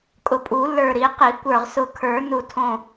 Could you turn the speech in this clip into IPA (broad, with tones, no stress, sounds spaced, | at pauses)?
kʼ ʊ˧˩ pʼ u˨˩˦ lː ə˞˧˩ ɾ i˨˩˦ q i˨˩˦ kʷ ə˞˧˩ ʁ s ʊ˧˩ kʰ ə˞˨˩˦ n u˧˩ tʰ õ˧˩